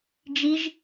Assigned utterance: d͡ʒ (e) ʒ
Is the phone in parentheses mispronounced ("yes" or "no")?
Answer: yes